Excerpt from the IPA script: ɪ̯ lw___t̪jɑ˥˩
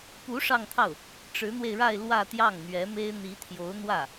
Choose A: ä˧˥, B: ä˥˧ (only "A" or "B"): B